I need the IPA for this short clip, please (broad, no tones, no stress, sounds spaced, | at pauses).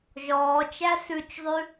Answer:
ʒ ɔː t͡ʃ æ s ʉ t͡ʃ zˤ ʉ